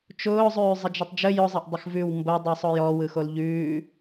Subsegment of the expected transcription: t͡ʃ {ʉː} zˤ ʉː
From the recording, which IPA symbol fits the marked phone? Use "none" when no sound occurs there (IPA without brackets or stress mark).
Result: ʊː